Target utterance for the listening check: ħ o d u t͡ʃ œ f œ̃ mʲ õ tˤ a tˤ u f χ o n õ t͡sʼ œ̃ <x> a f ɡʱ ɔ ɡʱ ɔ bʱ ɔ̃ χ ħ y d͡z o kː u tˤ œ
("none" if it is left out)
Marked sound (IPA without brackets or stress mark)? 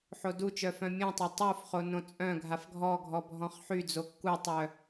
ɡʱ